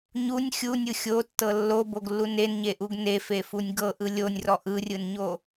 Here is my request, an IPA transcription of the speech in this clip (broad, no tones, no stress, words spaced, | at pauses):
ɲunʲ xʲunʲɯ xʲotːɤ lːoboɡlːu nenɲeʔuɡ nefefunʲ ɡɤʔɯ lʲonʲrɔ ʔɯrʲɯnɲo